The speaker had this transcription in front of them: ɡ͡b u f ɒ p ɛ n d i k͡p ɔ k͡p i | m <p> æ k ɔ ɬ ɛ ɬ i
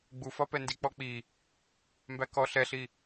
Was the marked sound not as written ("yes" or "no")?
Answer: yes